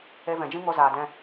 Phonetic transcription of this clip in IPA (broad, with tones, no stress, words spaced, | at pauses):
e˧vɛ̃˨d͡ʒĩ˦ ŋo˧zaː˨dɛ̃˧